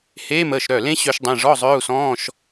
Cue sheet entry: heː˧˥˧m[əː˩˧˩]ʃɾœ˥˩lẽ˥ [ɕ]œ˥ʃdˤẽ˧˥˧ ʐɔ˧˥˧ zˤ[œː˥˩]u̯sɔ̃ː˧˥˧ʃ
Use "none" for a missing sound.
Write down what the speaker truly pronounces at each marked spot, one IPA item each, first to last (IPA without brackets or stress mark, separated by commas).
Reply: əː˩˧˩, ɕ, œː˧˥˧